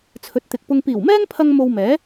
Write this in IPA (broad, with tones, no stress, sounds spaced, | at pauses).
t͡sʰ ɵ˨˥ t̚ t̪ ɪ˨ k̚ p ʊ˧ ŋ p iː˨˩ w m ɛː˥ ŋ pʰ ɐ˧ ŋ m o˧ w m ɛː˨˥